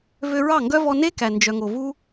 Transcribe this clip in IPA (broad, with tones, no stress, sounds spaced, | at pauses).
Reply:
v ø˧ ɹ ɑ˦˨ ŋ ɡ œ˦ v ɔ˧ n e˦ k æ˨ n d͡ʒ œ˨ ŋ o˨ v u˦